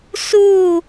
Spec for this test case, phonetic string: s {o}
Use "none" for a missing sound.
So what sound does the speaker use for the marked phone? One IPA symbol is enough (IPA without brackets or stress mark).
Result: u